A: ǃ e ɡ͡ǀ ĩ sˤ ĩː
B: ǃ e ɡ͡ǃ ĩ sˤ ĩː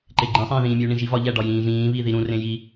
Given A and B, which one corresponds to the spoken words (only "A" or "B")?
B